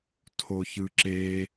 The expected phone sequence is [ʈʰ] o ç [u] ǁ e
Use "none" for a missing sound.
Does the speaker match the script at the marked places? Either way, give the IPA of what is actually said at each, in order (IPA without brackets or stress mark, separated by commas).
tʰ, ɯ